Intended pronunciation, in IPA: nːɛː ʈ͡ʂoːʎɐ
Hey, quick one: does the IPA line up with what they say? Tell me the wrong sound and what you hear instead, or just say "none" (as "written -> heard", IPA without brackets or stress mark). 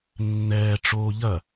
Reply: none